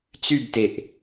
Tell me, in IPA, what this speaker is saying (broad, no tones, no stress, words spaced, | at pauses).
t͡sybteʔ